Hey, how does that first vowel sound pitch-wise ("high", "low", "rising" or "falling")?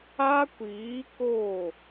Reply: high